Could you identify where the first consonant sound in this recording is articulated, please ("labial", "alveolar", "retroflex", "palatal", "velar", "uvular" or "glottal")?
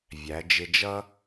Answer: labial